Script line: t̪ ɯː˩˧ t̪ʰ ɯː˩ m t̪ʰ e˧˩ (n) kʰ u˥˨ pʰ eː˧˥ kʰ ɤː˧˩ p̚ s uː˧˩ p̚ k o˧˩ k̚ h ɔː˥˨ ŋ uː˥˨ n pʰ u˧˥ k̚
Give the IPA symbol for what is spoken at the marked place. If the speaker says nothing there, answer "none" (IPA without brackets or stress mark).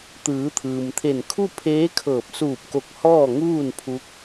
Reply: n